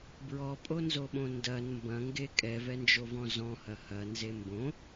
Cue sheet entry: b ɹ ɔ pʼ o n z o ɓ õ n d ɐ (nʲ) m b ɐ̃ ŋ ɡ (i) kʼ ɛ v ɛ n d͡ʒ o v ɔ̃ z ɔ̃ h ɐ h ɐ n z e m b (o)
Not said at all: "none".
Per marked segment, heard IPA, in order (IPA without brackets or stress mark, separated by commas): n, e, õ